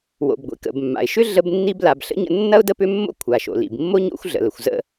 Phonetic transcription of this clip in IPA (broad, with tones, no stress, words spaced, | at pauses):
wo̰˩bɡʷḭ˩kə̰˩b mːa̰˩ɪ̯ʃʏ˥ ɮə˦bnːi˦bla˨b ɬə̰˥ɲə̰˦ nːɐ˦ʊ̯ də˦pʏ˦mːo̰˦ kʷʰa˩ʃo̰˩lḭ˩bmːo˥ ɲo̰˦xʷ ɮə̰˩lə˩xʷ zə̰˥